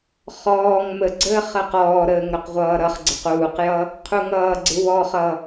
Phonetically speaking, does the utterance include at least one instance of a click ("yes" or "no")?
yes